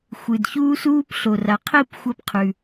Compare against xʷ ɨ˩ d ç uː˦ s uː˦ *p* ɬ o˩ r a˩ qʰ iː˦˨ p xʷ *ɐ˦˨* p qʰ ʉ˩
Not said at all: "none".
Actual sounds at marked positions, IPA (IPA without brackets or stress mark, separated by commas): p, ɐ˦˨